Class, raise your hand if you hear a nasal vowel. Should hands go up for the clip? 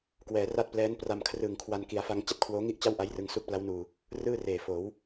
no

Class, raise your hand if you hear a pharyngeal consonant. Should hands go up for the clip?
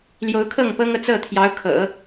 no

